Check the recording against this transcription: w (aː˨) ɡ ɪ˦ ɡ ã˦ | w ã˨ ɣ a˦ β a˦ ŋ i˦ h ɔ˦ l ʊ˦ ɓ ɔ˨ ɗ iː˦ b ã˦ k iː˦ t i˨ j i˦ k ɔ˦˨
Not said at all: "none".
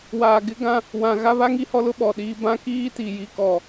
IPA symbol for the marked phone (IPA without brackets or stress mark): aː˨